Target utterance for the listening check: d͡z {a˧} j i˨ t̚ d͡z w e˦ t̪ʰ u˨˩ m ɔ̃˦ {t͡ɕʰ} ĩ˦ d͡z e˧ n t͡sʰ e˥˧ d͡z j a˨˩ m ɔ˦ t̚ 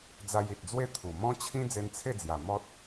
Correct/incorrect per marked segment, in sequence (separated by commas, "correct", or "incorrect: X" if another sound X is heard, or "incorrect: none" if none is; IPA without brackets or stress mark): correct, correct